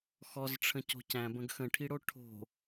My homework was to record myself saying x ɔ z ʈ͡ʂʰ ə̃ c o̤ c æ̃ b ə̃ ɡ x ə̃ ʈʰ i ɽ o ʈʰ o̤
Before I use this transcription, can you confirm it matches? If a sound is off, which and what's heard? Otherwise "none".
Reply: none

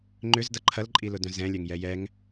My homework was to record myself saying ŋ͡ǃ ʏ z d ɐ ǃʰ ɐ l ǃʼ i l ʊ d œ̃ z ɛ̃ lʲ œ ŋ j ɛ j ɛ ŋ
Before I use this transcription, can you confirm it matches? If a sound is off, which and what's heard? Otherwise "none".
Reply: none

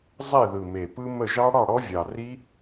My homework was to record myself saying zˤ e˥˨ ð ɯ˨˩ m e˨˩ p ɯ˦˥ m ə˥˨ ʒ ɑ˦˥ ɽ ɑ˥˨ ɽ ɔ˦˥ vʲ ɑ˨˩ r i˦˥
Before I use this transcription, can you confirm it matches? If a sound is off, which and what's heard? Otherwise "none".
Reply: none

